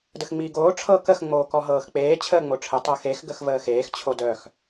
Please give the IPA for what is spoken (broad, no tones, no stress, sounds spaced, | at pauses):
d ə x ŋ͡m iː ɡ oː ʈ͡ʂʰ ɤ k ə x ŋ͡m oː k ɔ ɦ ɤː x k͡p eː t͡ɕʰ əː ŋ͡m o ʈ͡ʂʰ ə tˤ ɤ x e x ɡ ə x v əː x eː x t͡ɕʰ o d œ x